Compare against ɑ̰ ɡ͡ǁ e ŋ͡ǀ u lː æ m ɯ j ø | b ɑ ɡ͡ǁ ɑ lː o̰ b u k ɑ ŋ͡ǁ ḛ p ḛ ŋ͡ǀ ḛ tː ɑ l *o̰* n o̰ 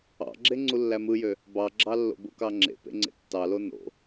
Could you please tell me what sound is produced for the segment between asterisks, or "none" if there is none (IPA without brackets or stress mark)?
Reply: o